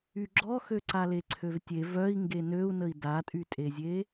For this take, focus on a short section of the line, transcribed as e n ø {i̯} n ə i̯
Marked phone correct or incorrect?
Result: incorrect